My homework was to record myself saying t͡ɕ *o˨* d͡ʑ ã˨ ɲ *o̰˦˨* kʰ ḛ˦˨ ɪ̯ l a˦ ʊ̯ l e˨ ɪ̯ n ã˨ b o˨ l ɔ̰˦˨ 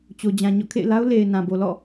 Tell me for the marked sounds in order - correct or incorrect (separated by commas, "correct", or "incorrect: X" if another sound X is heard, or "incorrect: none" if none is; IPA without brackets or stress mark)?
correct, incorrect: ɔ̰˦˨